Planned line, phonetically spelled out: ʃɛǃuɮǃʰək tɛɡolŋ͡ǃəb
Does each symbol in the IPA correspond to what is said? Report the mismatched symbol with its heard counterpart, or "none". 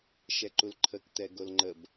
ɮ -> l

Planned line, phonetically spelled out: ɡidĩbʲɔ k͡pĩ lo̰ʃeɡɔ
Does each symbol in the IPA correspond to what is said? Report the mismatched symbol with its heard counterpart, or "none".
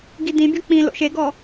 none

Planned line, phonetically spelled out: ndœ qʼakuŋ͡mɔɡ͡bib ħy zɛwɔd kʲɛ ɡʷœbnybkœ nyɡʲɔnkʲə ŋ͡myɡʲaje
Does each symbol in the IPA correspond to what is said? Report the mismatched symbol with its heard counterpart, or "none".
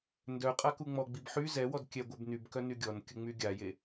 none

